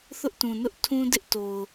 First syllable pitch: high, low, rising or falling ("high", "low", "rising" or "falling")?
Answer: high